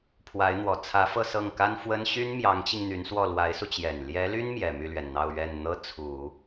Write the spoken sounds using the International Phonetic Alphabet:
pʰwa˧˥ɪ̯n̪wɔ˨˩ t͡sʰä˧˥ fɤ˥˧sɤ˥˩ŋka˥n fwə˥n ɕy˥nmjɑ˧˥ŋt͡ɕi˧ŋ n̪y˧˥nswɔ˥˩ lwa˧˥ɪ̯su˧t͡ɕjɛ˨˩n ljɛ˧˥ly˥n mjɛ˨˩ my˥˩lɥɛ˩nn̪ɑ˥˧ʊ̯ ɥɛ˥˩n n̪ɤ˥t͡sʰu˨˩˦

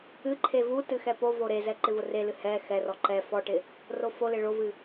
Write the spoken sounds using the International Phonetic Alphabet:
ɨǃʰe vutɨ xɛpovo ɾezɛ ǃɪvʊrelɨ hɛ xɛrɔ ǃɛ fɔʈɪ | rofolɪ ɭovɨ

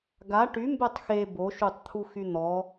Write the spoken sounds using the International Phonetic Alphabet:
ɡa ʈy mbɛtˤxe boʃutˤt̪ʰu xyn̪ɔ

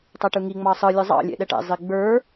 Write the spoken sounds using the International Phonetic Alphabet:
tˤɛʈɯŋi ŋ͡mɑsˤɯ lʲɯzˤɑ̰ lʲɛ̰ɗɛʈɛ̰ zˤiɡ͡bə˞

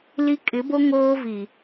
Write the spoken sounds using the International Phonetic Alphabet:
li˦ kʼɪ˨˦bo˦ ŋoː˦vi˨

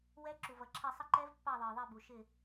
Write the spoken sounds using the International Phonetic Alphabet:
wɛ˧˥ǁu˩vʌ˩ǁʰɛ˧˩ sˤə˧˥ǃɛ˧˥v pːɑ˧˩ðˤə˞˩ðˤɪ˧˩ bu˩ʃɪ˧˩

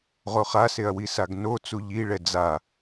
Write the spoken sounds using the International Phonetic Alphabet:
ʁoχaseɐ̯wi saɡno t͡suʎiɭɛ d͡za

